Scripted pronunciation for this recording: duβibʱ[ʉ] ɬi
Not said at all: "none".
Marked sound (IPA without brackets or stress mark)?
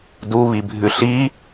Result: ʉ